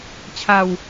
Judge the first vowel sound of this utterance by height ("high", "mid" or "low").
low